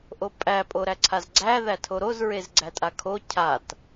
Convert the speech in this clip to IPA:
ʔ o pʼ æ pʼ o ɾ æ ǀʰ a z ɡ͡ǀ æ ð æ tʰ o ɾ o z ɹ e z ɡ͡ǀ æ tʼ a kʰ o cʰ a t

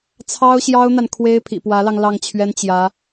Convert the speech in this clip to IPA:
t͡sʰ ɑ˥ ʊ̯ ɕ j ɑ˥ ʊ̯ n̪ a˨ n kʰ w e˥ ɪ̯ pʰ ḭ˨˩ p w ä˧˥ l ɑ˧ ŋ l ɑ˥˩ ŋ t͡ɕʰ ɥ ɛ˥ n t͡ɕ j ä˧˥

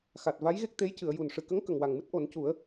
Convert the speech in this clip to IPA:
x a˨˩ t̚ v a˧˥ j ɣ e˦˥ k̚ t̪ e˧˥ j c ɨ˨˩˨ ə̯ j u˨˩ n ʂ ɨ˨˩ k ə˧˥ ŋ k ə˨˩ ŋ w a˨˩ ŋ m ɨ˦˥ t̚ ʔ o˨˩˦ n c u˨˩˦ ə̯

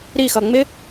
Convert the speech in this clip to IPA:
ɾ i x ʌ ŋ͡m ɪ

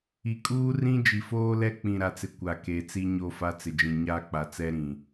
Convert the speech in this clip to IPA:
i˨ kʼ uː˦ r ĩ˦ d͡ʒ i˨ f oː˦ l ɛ˦ k͡p ĩ˨ ɾ a˨ t͡s ɪ˨ kʷ a˨ k e˨ t͡s i˦ ɲ o˦˨ f a˦ t͡s ɪ˨ d͡ʒ ĩ˨ ɲ a˦ k͡p a˨ t͡s ɛ˦ ɾ ĩ˨

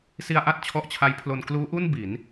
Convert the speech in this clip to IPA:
s i˧ a̯ ʔ a˥˩ t̚ t͡ɕʰ ɔ˦˥ ʔ t͡ɕʰ a˦˥ j pʰ l o˧ n k l uː˦˥ ʔ u˥˩ n b i˩˦ n

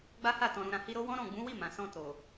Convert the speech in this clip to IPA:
ɡ͡b a˦ h a˦˨ t ɔ̃˨ ɾ ũ˨ ɾ ã˨ h i˧ ɾ o˦ w ɔ̃˦ ɾ ɔ̃˦˨ ɡ͡b ũ˨˦ w i˦˨ m ã˨ s ɔ̃˧ t o˨

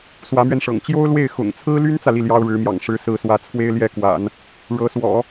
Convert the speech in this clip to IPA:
s w ä˧˥ m ɥ ɛ˧ n ʂ ɤ̰˨˩ ŋ t͡ɕ j o˥ ʊ̯ l w e˥˩ ɪ̯ x ʊ̰˨˩ ŋ t͡sʰ ɹ̩˥ l y˥ n t͡s ä˨ l i˥˩ l j ɑ˥ ʊ̯ ɻ ɻ̩˧˥ m j ɑ̰˨˩ ŋ ʂ ɻ̩˧˥ s ɹ̩˧˥ s w ä˧˥ t͡sʰ w e˥ ɪ̯ l j ɛ˥˩ k w a̰˨˩˦ n | ɻ ɤ˧˥ s w ɔ̰˨˩˦

